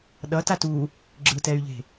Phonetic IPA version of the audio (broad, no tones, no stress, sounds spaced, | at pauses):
ɗ ʌ t a t u | ɡ͡ǁ ɯ t ɛ y̯ ʎ e̤